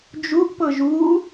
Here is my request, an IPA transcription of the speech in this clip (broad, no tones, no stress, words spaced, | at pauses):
d͡ʒuʔpɤʒ u